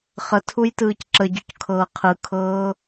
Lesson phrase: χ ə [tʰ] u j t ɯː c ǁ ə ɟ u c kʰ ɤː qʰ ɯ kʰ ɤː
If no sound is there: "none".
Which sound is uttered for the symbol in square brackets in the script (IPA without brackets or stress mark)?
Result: tʰ